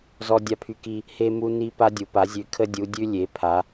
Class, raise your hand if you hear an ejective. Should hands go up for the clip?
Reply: no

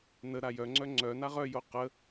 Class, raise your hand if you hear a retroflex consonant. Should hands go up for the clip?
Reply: no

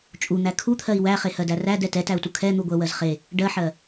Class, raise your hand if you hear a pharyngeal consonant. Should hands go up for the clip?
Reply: yes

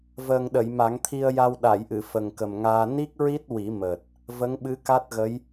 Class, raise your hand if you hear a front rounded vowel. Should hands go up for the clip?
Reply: no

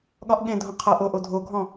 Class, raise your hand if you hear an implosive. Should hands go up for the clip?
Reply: yes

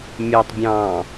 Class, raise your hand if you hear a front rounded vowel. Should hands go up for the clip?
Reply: yes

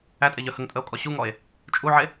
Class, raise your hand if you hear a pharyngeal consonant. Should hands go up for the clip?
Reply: yes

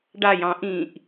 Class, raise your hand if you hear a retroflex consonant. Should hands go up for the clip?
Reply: yes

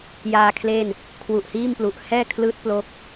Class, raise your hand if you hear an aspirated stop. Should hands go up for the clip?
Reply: yes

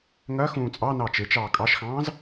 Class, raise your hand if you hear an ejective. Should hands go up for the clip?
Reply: yes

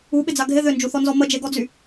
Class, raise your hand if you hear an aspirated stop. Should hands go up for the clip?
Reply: no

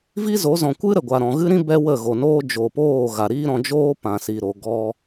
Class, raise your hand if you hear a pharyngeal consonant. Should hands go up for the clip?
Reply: no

